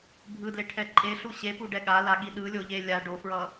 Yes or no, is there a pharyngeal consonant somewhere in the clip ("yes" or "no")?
no